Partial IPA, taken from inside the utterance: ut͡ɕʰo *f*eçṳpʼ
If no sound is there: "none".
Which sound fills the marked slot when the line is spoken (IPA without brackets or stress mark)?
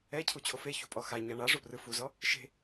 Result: f